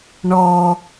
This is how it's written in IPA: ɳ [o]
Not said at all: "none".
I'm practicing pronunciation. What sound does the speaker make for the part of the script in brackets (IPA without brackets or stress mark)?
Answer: ɔ